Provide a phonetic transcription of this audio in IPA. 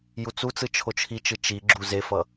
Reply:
j u t͡s u t͡s ɯ t͡ʃʰ o t͡ʃʰ i t͡ʃ ɯ t͡ʃ i ɡ͡ǁ u z e f ʌ

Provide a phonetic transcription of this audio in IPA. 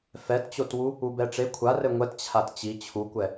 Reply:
f ɛ t t͡ɕ o t w u | u b ɛ ʈ͡ʂ e kʷʰ a r ɘ ŋʷ ɛ t t͡ɕʰ a t t͡ɕ i t͡ɕʰ u kʷ ɛ

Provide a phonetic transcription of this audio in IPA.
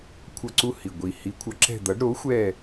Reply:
kʷʰ ʌ˦˨ ǀ u˦˨ h i˨˩ ɡʷ i˨˩ h i˨˥ kʷʰ ʌ˨˥ ǁ ɛ̤˦˨ d̪ ʌ˨˥ ɖ ɾ o˨˥ xʷ ɛ˦˨

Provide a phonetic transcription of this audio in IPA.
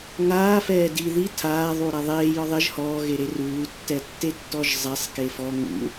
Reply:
ŋ aː f ɛː d i ð i tʰ aː ðˤ uː ɾ a ðˤ eː j ɒ ðˤ ɪ ʒ h ɔː ɣ e ɾ e r uː tː ɛ tː e tː ɔ ʒ zˤ ɛ sˤ k e f ɔ ŋ ṵ

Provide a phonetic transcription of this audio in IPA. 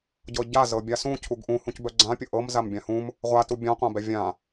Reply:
ɟ ɤ ɟ a z ɤ bʲ a s ũ cʰ u ɡ ʔ ũ h ũ c b œ ɡ͡ǀ ã pʲ ʊ ʔ ɤ m z a m bʲ ã h ũ m | ʁʷ a t u bʲ ã qʷ ã b ɛ vʲ ã

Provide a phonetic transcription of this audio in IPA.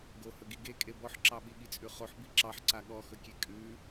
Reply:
ɡ o h ɵ ɡ i ɡ e kʼ e b ɔ ħ ǁ ɑ ɓ i ɠ i t͡sʼ ʉ χ o ħ b i ǁ ɑ ħ ǀ a ɠ ɔ x ɵ kʲ e kʼ ʉ

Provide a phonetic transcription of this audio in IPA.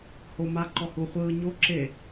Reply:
h o m a ǃ ɔ h u χʷ ɯː ɲ o ǁ e

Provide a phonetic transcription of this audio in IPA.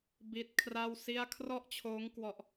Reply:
b i˦˥ t̚ kʰ r a˥˩ w s i˥˩ a̯ kʰ r ɔ˥˩ ʔ t͡ɕʰ oː˦˥ ŋ k w ɔ˨˩ ʔ

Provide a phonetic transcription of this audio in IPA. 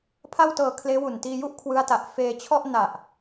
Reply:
pʰ a˥˩ w t ɤː˧ kʰ l eː˦˥ w u˨˩ n t iː˧ j u˥˩ ʔ kʰ w ɯ˦˥ a̯ t a˨˩ ʔ f eː˧ t͡ɕʰ ɔ˥˩ ʔ n a˨˩ ʔ

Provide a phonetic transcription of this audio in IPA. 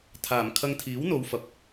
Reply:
t̪ʰ aː˨˩ m kʰ ɐ˧ ŋ t̪ʰ iː˨˥ w n̪ o˨˧ w f ɐ˨ p̚

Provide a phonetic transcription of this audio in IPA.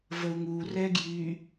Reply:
v ə u̯ ŋ u r ɛ ɡ j y

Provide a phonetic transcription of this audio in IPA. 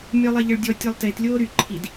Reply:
mʲ ɔ lˠ ɛ ʎ ə ɭ dʲ ɔ tʲ œ lˠ t e t lʲ oː ɾ y ǃʰ i d

